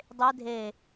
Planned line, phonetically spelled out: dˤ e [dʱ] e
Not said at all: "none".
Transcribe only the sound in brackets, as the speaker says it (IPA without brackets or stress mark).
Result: dʱ